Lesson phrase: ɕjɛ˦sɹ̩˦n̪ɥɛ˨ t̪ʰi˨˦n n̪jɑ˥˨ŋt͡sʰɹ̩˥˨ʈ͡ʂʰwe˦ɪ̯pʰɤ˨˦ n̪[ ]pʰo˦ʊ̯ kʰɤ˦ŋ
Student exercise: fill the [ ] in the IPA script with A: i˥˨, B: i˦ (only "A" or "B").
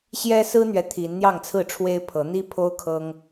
B